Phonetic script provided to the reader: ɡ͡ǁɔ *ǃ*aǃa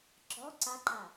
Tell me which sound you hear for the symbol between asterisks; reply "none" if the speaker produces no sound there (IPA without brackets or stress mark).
ǀ